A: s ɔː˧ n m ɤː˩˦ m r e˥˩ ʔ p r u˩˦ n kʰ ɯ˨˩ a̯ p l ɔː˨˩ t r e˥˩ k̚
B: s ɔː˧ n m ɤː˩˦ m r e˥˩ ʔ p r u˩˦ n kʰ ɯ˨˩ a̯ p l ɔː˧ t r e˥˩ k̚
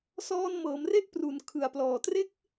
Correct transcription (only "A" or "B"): A